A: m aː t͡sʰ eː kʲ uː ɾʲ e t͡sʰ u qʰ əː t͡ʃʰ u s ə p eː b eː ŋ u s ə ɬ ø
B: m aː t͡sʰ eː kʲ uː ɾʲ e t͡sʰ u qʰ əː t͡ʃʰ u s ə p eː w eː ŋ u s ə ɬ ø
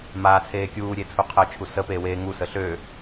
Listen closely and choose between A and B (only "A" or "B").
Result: B